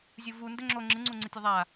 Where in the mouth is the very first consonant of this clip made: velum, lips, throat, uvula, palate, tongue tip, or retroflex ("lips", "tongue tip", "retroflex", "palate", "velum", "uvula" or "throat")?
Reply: tongue tip